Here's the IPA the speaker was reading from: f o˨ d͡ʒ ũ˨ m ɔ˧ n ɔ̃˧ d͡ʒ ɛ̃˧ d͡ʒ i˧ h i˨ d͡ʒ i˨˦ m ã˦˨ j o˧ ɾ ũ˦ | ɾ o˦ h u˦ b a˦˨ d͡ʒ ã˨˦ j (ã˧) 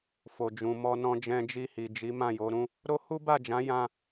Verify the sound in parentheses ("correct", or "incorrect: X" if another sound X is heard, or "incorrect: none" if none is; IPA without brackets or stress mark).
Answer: incorrect: ã˦